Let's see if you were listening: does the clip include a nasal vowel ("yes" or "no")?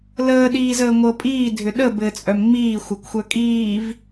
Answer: no